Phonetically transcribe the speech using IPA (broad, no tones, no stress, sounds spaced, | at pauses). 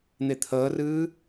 n̪ e t̪ʰ əː r ɨː